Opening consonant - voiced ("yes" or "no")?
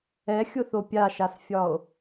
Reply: no